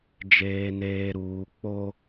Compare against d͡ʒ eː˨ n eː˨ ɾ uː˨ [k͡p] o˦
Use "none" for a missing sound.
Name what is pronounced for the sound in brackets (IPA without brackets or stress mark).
k͡p